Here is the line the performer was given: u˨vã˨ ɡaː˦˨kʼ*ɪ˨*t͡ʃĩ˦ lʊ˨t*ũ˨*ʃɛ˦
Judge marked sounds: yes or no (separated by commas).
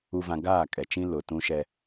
no, no